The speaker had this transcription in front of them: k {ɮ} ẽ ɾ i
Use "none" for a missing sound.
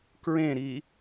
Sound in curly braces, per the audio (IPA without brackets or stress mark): ɹ